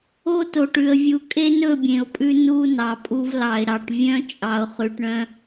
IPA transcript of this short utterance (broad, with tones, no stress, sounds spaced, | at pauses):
o˦ t o˨ ʈ ʉ˨ ə̯ vʲ u˨ kʼ e˦ n ɵ˦˨ bʲ ẽ˨ ʊ̯ pʼ ʉ˦ n u˦ n ɑ˨ pʼ u˦ v l ɑ˨ ɪ̯ ɾ ɑ˨ ʈ vʲ œ̃˦ t͡ʃʼ ɑ˨ ʊ̯ χ ʉ˨ ʈ ɳ œ̃˦